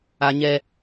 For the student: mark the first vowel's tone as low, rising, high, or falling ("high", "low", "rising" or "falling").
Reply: high